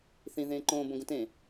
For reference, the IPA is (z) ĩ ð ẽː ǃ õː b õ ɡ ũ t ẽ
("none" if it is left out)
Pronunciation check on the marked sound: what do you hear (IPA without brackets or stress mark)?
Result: θ